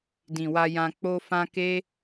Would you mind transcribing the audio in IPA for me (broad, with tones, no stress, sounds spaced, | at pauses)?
d ĩ˨ w a˧ j ã˧ k͡p o˧ f ã˧ k e˦